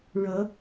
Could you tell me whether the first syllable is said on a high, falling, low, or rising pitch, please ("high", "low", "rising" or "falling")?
rising